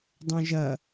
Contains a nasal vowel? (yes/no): yes